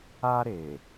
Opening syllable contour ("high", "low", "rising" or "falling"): high